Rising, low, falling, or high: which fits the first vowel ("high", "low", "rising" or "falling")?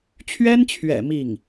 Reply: high